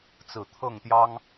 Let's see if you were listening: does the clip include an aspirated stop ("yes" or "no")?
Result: yes